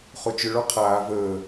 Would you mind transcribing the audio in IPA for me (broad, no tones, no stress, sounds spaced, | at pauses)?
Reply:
χ o t͡ʃ ʏ ɭ ɔ qʰ aː v əː